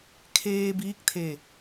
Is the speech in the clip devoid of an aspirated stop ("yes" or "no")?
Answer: no